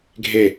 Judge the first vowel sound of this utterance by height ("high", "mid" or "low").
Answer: mid